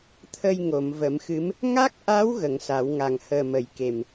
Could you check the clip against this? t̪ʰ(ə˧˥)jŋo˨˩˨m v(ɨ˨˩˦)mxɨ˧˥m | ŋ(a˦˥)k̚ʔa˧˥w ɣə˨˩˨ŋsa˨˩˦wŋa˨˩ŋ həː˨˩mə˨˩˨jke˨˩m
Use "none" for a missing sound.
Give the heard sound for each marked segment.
ə˧, ə˨˩˦, a˦˥

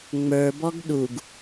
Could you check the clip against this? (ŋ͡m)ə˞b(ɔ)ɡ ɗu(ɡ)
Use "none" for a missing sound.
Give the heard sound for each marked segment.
ŋ͡m, ɔ, ɡ

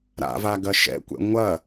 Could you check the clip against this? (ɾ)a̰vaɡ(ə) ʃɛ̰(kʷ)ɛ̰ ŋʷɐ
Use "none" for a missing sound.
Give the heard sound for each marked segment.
ɾ, ɐ, kʷ

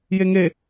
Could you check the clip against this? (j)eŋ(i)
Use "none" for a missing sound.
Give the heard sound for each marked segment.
j, e

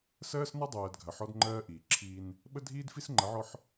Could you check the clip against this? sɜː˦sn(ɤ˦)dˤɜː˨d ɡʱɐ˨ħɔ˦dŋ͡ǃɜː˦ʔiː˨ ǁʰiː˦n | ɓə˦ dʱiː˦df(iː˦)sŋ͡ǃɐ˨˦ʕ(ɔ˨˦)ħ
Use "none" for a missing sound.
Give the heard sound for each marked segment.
ɔ˦, i˦, ɔ˦

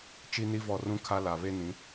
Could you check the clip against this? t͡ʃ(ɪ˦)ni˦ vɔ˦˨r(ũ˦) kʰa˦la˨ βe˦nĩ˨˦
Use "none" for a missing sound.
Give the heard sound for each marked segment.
i˦, ũ˦

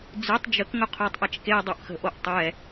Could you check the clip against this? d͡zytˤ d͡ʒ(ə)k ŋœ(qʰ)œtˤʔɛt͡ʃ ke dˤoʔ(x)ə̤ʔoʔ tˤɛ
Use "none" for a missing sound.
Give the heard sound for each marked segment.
ə, qʰ, x

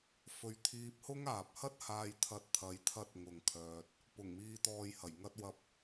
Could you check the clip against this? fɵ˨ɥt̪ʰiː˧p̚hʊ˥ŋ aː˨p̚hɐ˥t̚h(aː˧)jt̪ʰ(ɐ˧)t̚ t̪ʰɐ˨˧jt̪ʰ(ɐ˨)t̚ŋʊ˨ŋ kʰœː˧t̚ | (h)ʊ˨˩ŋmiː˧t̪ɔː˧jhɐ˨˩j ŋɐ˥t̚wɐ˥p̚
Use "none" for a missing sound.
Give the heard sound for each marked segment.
aː˧, ɐ˧, ɐ˧, p

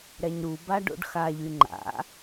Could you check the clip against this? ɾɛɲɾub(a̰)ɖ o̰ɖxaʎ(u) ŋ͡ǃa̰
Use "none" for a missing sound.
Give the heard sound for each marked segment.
a, y

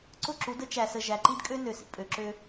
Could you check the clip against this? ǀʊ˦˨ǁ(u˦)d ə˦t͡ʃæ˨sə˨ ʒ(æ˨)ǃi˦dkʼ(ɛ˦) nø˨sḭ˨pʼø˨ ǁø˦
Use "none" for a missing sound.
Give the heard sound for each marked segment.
u˨˦, æ˨, ø˦

